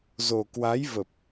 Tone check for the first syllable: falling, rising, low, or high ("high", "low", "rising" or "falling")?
low